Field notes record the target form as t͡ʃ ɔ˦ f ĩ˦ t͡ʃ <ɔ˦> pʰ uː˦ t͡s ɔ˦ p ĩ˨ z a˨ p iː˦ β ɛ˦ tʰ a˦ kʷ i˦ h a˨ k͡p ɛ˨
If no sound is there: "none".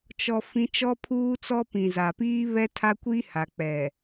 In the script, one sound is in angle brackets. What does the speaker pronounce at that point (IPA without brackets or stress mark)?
ɔ˦